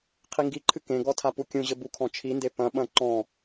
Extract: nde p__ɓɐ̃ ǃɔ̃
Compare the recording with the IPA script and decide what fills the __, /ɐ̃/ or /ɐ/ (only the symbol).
ɐ̃